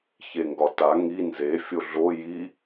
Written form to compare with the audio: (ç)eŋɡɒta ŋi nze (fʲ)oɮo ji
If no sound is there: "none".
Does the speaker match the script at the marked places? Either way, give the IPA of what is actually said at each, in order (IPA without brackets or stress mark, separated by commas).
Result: ç, fʲ